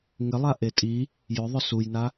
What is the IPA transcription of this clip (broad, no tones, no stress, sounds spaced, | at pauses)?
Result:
ŋ ɪ lˠ a ʔ e tʼ i | j ʊ ðˤ ʊ s u j n a